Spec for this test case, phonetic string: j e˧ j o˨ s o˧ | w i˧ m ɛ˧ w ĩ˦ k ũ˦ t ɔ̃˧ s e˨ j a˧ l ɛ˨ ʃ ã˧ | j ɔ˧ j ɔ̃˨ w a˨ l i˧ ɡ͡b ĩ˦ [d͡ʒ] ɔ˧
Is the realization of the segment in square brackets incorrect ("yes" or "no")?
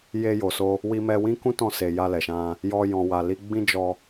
no